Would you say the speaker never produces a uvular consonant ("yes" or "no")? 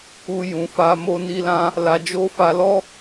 yes